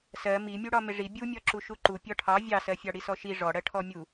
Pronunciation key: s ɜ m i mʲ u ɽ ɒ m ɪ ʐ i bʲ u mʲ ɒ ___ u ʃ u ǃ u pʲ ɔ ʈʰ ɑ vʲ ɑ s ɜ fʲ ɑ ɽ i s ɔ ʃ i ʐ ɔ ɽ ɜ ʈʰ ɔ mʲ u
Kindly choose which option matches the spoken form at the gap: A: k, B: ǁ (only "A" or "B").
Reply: B